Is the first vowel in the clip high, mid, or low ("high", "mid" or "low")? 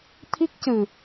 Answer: high